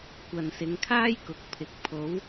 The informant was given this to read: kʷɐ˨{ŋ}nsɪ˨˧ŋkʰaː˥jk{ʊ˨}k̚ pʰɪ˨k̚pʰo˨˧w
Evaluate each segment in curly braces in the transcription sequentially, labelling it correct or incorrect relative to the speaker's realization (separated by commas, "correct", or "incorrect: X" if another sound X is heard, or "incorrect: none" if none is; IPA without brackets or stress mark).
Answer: incorrect: none, incorrect: ʊ˨˥